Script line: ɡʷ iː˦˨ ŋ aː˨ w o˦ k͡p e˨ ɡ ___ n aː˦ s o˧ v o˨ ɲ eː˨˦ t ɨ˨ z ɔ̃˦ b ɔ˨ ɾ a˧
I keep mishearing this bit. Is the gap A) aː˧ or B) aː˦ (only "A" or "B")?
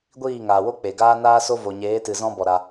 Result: B